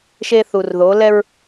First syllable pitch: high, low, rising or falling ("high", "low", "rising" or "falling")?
high